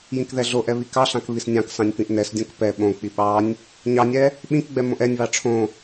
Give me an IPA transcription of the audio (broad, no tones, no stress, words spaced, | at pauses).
jĩkðɛɮoʔɛ βikɑɬɑ̃k βisnʲɑ̃ksɑ̃nʲ pĩʔnɛsdʲõk pɛ ɓõk͡pi ɓɑnʲ | ɲɑnʲɛ | ɓĩkɡ͡bɛ mõʔɛnʲβɑ ʈ͡ʂʰõ